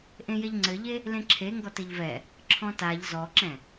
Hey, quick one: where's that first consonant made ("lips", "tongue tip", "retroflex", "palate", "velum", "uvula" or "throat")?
throat